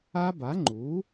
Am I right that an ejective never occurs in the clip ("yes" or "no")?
yes